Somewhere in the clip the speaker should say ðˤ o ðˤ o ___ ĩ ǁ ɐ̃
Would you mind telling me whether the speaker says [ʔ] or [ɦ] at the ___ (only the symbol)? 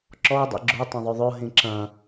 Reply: ɦ